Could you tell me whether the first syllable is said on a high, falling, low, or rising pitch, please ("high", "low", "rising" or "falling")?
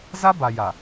high